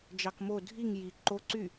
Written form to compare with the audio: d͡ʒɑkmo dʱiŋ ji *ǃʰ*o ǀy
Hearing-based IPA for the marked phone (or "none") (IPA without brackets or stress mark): ǃ